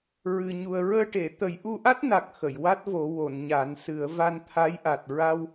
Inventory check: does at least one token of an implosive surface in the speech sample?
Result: no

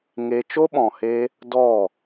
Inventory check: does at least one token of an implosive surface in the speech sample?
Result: yes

